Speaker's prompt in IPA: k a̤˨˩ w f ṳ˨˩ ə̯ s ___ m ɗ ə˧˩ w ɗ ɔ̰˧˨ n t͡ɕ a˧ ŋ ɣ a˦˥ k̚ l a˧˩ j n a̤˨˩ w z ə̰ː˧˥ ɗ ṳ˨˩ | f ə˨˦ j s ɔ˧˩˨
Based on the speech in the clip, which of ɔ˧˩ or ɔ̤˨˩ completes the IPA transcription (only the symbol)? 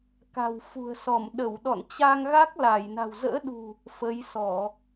ɔ˧˩